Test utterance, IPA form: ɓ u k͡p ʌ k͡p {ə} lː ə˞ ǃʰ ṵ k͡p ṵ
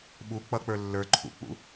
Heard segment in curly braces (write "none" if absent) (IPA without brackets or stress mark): ə˞